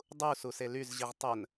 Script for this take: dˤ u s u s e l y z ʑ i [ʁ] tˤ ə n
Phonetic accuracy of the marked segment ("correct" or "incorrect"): correct